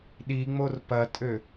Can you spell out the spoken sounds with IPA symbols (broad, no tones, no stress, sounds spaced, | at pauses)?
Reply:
ɗ i ŋ͡m o r p ɐ tʼ ø